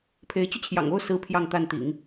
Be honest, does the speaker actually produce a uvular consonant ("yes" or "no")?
no